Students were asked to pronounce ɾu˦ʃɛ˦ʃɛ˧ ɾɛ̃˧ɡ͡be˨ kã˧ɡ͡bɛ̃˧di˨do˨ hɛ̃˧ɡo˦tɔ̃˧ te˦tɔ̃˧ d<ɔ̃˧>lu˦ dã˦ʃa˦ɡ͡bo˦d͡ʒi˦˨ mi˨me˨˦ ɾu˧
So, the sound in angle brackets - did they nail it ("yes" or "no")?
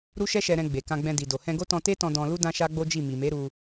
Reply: yes